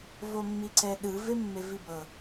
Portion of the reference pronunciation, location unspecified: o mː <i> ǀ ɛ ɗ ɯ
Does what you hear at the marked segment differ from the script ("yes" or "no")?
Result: no